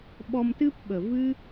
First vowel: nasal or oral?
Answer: oral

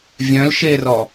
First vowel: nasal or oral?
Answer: nasal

